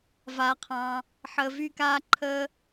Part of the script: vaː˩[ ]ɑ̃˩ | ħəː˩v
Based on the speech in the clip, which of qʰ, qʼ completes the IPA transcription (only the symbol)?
qʰ